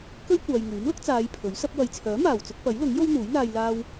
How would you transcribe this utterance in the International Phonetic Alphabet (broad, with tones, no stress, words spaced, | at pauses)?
kɵ˥ɥ kʷaː˨jŋyː˨˥mlʊ˥k̚ t͡saː˨˧j pʰɵ˨˥ɥsɐ˥p̚ wɐ˨jt͡sʰœː˨˥maː˨˩wt͡sʊ˧k̚ pɐ˨˥jlʊ˨˥ŋ jo˥wn̪uː˨˥jn̪aː˧j laː˧w